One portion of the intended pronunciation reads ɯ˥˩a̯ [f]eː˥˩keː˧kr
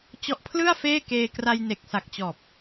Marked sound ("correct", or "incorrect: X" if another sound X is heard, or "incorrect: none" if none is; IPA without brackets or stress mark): correct